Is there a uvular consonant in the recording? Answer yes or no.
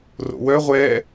yes